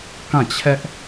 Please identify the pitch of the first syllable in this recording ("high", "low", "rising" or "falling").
falling